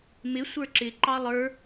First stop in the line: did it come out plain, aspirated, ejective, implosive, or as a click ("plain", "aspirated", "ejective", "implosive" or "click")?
click